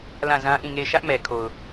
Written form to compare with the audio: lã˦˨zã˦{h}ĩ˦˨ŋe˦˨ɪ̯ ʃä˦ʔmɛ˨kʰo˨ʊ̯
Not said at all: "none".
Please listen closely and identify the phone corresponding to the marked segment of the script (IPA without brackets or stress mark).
ʔ